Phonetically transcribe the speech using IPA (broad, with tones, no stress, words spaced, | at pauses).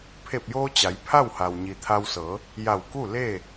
pʰe˧˩p̚joː˧ t͡ɕa˩˧j pʰa˥˨wha˩w ɲi˩t̪ʰa˧wsɤː˩˧ | ja˧˩wku˥˨leː˥˨